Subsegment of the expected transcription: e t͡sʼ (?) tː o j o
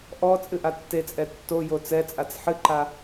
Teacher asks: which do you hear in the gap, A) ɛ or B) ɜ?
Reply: A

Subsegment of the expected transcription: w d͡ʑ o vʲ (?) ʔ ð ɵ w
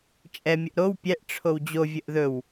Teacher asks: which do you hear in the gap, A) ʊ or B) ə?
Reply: B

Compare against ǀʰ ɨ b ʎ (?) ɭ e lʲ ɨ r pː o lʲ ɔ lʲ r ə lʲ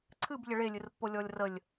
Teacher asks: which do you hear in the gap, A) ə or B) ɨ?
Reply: A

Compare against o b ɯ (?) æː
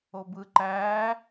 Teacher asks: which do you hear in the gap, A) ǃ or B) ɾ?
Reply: A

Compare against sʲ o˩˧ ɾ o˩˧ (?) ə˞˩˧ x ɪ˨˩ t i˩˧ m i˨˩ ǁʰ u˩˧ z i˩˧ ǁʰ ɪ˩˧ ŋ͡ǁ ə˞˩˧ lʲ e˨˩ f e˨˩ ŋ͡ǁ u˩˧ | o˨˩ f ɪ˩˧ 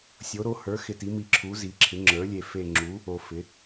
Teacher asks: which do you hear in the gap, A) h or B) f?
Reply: A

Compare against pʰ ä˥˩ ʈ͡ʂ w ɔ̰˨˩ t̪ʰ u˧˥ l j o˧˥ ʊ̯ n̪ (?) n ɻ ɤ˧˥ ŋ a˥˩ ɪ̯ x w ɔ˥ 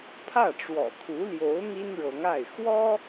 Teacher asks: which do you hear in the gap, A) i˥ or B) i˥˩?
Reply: A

